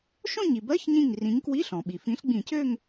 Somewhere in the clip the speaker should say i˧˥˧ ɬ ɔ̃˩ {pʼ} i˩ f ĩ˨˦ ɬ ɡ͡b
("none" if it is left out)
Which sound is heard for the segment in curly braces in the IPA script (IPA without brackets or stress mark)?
ɓ